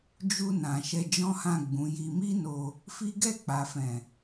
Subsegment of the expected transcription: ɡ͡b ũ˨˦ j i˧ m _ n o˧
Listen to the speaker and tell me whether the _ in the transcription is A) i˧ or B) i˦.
B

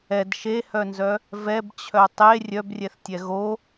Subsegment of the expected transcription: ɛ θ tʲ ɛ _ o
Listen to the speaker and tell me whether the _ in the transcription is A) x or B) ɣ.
B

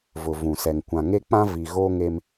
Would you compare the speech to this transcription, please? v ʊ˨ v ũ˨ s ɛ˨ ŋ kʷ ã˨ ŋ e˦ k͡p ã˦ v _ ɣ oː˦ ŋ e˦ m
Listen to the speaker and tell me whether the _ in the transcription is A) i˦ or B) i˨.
B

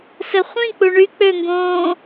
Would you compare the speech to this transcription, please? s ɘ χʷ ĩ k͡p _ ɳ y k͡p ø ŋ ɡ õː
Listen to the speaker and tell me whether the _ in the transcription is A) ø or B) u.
B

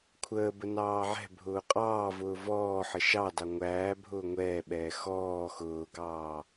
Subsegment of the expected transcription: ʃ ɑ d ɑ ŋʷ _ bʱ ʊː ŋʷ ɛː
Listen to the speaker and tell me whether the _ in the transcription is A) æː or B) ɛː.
A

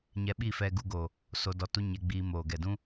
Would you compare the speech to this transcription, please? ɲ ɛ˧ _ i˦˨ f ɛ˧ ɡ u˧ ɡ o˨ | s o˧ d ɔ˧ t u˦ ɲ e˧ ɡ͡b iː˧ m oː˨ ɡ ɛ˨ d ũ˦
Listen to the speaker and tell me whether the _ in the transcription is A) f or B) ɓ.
B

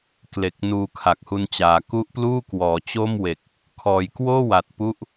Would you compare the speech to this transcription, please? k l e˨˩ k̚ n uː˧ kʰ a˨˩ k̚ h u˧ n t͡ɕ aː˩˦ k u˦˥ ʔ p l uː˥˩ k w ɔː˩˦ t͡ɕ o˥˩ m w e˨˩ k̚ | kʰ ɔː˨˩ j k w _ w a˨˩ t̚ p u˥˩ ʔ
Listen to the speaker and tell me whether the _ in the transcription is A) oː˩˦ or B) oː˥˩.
B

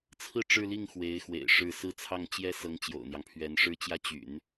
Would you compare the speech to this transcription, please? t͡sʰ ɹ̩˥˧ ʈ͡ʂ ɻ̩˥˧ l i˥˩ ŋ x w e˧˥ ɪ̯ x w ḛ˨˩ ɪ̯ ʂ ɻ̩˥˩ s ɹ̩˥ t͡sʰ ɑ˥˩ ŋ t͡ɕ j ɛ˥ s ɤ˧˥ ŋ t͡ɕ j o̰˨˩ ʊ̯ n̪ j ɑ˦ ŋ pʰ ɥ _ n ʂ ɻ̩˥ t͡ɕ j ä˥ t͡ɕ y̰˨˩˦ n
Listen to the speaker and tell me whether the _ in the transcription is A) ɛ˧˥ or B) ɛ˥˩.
A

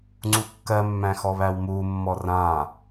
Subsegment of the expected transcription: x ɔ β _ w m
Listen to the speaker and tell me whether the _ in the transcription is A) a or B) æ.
B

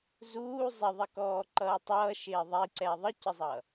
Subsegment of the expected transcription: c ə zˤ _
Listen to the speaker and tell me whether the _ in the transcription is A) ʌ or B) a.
A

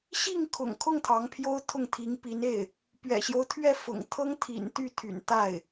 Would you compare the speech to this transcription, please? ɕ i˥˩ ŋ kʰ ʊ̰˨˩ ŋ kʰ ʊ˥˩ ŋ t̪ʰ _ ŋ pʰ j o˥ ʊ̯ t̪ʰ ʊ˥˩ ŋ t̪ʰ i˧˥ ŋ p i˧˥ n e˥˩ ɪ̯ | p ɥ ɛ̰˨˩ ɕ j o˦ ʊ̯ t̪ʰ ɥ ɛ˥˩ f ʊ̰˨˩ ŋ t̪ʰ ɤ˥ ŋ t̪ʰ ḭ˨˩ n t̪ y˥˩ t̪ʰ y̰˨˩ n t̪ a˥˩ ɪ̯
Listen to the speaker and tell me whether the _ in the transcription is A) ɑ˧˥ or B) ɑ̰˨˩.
A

